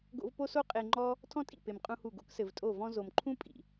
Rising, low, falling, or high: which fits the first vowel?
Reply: high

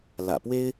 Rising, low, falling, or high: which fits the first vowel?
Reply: low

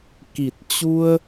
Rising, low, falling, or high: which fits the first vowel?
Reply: low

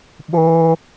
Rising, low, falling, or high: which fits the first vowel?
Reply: high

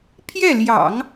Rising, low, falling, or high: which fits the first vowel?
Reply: falling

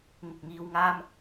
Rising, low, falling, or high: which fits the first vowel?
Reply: low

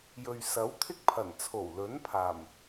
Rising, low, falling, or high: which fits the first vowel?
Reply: low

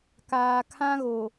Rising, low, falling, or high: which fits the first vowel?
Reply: low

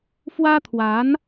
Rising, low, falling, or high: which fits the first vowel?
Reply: high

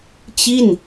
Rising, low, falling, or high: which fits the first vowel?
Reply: falling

